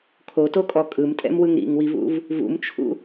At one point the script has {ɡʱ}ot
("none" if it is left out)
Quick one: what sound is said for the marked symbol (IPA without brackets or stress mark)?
kʰ